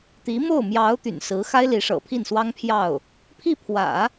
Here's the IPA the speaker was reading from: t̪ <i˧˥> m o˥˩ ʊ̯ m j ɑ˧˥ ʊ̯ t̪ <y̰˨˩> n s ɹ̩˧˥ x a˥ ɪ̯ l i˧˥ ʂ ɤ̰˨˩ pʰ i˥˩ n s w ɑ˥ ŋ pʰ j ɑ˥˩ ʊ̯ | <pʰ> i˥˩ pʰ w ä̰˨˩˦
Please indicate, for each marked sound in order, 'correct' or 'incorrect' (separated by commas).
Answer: correct, correct, correct